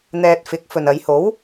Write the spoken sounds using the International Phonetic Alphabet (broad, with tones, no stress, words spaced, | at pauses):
n̪ɛː˧t̚fɪ˨˥k̚ fɵ˨nɐ˨˧jho˨˥w